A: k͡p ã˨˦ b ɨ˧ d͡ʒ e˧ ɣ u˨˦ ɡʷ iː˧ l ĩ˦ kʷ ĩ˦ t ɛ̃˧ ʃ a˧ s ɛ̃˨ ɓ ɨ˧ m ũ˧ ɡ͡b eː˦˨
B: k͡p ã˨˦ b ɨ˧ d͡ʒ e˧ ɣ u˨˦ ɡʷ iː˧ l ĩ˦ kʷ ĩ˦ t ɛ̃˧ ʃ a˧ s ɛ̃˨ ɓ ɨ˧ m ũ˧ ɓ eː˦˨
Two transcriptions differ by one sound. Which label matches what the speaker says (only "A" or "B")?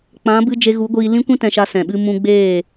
A